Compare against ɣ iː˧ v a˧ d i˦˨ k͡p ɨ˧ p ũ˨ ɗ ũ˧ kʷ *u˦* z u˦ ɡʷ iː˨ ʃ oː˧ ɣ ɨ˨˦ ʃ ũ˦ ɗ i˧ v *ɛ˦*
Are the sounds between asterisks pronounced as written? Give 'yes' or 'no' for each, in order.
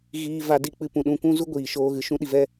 no, yes

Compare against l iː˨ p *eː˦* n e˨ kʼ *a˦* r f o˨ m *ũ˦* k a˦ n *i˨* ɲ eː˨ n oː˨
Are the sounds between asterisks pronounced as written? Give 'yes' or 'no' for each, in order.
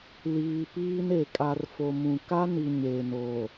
no, no, no, yes

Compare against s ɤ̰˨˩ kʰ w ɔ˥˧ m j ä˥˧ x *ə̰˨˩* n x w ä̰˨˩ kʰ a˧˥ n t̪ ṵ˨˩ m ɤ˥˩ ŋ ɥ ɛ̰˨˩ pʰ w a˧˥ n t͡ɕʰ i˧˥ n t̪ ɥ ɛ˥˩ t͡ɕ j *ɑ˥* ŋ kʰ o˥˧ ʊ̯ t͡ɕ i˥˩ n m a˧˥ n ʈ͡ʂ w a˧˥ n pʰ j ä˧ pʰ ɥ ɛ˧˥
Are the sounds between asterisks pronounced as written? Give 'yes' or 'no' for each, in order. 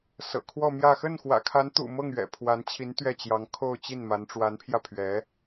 no, no

